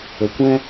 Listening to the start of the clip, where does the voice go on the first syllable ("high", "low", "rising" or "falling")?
low